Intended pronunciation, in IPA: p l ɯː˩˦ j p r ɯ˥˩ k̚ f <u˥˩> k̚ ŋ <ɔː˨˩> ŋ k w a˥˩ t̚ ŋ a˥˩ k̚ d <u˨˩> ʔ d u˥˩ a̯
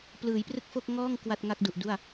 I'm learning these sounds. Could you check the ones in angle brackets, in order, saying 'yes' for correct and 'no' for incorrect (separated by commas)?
no, no, yes